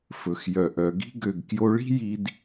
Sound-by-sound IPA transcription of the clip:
f ɵ˨ x j œ˨ ʔ œ˨ ɡ i̤˧ ɡ ø˨ ɡ k j o˧ ɭ i̤˦ j i˧ d

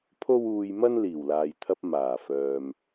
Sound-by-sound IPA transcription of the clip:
pʰ o˥ w uː˧ j m ɐ˥ n l iː˨˩ w l aː˨ j t̪ʰ ɐ˧ p̚ m aː˨˩ f œː˨ m

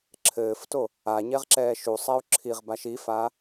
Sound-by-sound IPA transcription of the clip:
ǁʰ ɘː f t o | a ɲ ɛ ʁ ǁ ɛː ʃ u sˤ ɛ u̯ ǁʰ i ʁ b a ʃ i f a

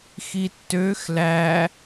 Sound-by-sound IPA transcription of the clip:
x i tː ø x l æ

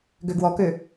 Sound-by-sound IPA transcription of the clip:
ɡ ø ɡ w ɔ k ø

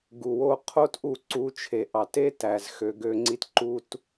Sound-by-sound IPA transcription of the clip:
ɡ u˨ w o˧ qʰ o˦ t ʔ u˦˨ ǀ u˧ t͡ʃʰ e˨ ʔ ɑ˨ t e˦ t æ˨ z x ø˧ ɡ ø˧ ŋ͡ǀ i˦ t ǃ u˦ t

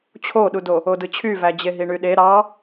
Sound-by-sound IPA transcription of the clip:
t͡ɕʰ o ɗ u d o | o d ɯ t͡ɕʰ y v æ d͡ʑ e ɦ i ɳ y ɗ e ɾ ɑ

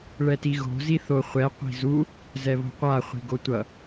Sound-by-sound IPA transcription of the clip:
ɭ ɛ t i ɣ o̤ z i θ o χʷ ɛ qʷ i̤ z u | z ɛ β o̤ qʷ a χʷ i̤ ɡ o tʷ ʌ

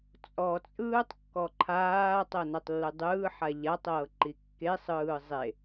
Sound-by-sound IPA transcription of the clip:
t͡sʼ ɔ t͡sʼ ɯː tˤ kː ɔ ǃʰ aː tˤ ɤ n a tˤ lː ɯ dˤ ɯː ħ a ʎ a tˤ ɤː ǃ i kː e sˤ ɯː zˤ e

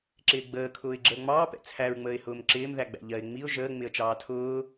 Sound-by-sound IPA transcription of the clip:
ǁ ɪː ɡ͡b əː kʰ ʊː ɪ̯ ɡ͡ǁ əː ŋ͡m ɑː p ɛ̰ t͡sʰ æ ɹ ŋ͡m əː ɪ̯ h ʊː m ǁ ɪː m ð æ ɡ͡b æ̰ ʎ ɜ ɪ̯ ŋ͡m i ʊ̯ ʒ əː ŋ͡m ɪ ə̯ t͡ʃ ɑː tʰ ʊː

